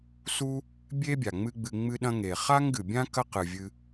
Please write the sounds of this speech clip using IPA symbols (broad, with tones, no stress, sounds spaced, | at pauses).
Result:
s u˥ | bʲ e˥ bʲ a˩ ŋ͡m ɨ˥ ɡ͡b ɨ˧ ŋ͡m ɨ˥ ɗ ɐ̃˥ ŋ e˩ χ a˥ ŋ ɡ ɨ˩ bʲ ã˥ k ɐ˥ q ɨ˩ vʲ ɨ˧